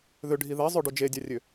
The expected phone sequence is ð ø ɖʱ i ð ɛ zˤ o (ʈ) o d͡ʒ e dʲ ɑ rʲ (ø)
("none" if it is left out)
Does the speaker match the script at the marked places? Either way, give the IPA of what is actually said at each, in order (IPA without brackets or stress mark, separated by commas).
ɖ, ø